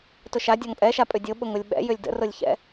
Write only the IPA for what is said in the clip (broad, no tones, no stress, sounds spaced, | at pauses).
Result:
t ʊ ʃ a dʲ ɔ ŋ pʼ ɛ ʃ a pʼ ʏ dʲ o ɓ ʊ ŋ ʊ lʲ ɓ ɛ̰ j ʏ lʲ d ə̰ r ʊ lʲ ç ɛ̰